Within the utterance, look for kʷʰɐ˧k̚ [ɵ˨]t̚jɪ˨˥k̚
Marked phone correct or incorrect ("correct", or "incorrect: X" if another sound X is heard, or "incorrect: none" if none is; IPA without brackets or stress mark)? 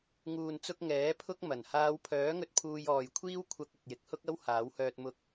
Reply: correct